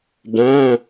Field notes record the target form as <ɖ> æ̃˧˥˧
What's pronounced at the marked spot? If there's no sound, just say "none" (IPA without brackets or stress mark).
ɖ